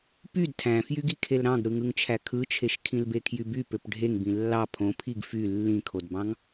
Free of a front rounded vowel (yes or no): no